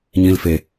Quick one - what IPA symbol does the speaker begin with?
ɲ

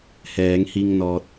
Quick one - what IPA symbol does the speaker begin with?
h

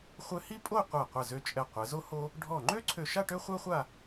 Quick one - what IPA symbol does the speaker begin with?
χʷ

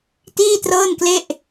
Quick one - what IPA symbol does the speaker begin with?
t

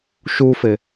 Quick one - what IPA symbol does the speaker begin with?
ʃ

